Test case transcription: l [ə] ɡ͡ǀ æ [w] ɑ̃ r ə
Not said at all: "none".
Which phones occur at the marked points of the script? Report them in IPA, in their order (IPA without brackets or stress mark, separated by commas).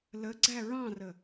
ə, ɹ